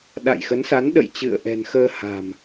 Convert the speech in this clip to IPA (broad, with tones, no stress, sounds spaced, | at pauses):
ɗ a̰˧˨ j x ə˨˦ n s a˨˦ n ɗ ə̰˧˨ j t͡ɕ ɨ̰˧˨ ə̯ ʔ ɛ̤˨˩ n x əː˧ h a̤˨˩ m